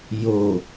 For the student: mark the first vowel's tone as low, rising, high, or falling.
low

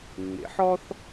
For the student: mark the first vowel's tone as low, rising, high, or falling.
rising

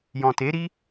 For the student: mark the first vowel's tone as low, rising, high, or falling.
low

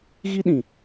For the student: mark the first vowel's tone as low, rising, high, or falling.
high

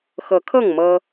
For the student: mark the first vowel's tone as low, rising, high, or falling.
rising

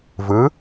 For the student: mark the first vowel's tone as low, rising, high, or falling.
rising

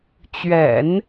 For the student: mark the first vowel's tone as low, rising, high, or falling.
low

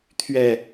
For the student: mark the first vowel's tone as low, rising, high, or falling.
falling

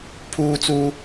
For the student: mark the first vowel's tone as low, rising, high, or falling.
high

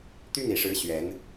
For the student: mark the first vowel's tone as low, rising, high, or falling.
high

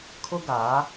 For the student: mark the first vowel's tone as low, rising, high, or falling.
high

